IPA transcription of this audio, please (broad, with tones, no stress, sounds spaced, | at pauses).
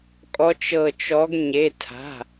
kʼ ɔ˨˦ t͡ʃ ɤ˧˩ t͡ʃ ɔ˨˦ ɡ ɲ e˩˧˩ tʰ a̤˩˧˩